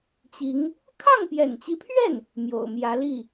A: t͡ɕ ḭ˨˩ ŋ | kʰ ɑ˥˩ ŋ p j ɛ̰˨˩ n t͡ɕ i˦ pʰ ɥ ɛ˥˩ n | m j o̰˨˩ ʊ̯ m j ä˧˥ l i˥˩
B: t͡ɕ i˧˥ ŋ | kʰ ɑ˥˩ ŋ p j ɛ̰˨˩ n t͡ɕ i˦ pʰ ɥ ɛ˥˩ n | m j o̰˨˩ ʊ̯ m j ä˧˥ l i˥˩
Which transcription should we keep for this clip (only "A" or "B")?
B